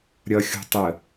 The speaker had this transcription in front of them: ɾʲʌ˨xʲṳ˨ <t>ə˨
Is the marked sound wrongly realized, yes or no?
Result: yes